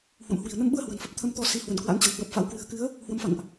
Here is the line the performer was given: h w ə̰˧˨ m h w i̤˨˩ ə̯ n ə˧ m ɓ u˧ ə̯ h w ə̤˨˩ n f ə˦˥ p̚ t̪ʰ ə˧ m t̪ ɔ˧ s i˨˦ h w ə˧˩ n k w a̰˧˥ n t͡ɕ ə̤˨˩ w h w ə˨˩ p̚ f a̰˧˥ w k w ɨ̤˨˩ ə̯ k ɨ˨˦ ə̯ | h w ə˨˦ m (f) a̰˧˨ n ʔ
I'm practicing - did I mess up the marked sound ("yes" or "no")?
no